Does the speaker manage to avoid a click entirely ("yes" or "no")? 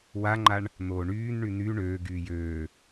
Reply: no